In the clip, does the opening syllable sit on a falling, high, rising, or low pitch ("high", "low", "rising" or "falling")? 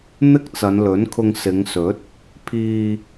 high